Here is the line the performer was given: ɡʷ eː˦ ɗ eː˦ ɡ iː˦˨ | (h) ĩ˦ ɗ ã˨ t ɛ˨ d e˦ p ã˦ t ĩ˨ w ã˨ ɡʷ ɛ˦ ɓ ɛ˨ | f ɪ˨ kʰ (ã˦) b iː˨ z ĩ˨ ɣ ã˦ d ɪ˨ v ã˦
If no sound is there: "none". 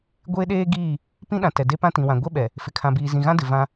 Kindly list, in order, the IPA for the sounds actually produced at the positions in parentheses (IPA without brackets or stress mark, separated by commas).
p, ã˨